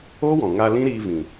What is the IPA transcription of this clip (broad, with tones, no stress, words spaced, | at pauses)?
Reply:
oː˦wɔ̃˨ŋa˧ lĩ˦ɾiː˧vĩ˨